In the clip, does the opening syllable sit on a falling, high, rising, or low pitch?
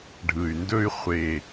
low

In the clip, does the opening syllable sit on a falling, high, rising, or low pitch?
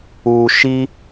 low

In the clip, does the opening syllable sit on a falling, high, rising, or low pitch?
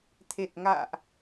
low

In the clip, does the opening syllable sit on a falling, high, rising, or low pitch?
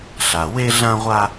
low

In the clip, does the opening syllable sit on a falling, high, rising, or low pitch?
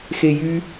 high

